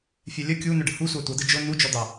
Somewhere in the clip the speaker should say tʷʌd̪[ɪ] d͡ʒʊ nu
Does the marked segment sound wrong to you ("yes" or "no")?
no